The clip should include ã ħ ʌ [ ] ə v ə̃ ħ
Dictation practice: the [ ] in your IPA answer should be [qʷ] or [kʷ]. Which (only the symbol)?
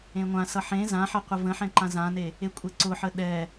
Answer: qʷ